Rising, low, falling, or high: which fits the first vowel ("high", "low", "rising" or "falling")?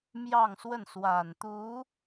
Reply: falling